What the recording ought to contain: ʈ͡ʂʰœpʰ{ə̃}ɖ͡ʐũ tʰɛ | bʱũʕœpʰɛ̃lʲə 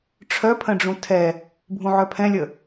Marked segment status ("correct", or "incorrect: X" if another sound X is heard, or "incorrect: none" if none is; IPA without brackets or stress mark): correct